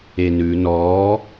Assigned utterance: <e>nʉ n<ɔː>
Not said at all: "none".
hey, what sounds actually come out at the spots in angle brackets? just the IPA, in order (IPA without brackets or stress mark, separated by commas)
e, ɔː